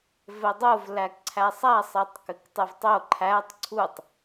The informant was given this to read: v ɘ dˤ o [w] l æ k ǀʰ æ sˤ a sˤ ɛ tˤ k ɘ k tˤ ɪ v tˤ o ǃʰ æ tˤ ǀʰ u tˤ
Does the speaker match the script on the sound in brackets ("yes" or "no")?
no